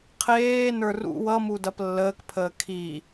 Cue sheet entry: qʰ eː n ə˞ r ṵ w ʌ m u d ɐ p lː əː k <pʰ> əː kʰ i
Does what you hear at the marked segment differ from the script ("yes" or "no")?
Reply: no